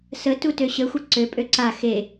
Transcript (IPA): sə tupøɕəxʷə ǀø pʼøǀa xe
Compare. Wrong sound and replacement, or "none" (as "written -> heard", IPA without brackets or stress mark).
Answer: p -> t